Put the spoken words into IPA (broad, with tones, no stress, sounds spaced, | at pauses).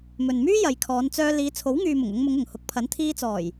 m ɵ˨ n m yː˥ j ɐ˨˧ j kʰ ɔː˨˧ n t͡s œː˧ l iː˨˧ t͡sʰ o˨˥ w ŋ yː˨ m ʊ˨˩ ŋ ʊ˧ ŋ m ʊ˨˧ ŋ ʊ˨˩ ŋ h ʊ˨˥ k̚ pʰ ɐ˨˥ n t̪ʰ iː˧ t͡s ɔː˨˩ j